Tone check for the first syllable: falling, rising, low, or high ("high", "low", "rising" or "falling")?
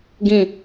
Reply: low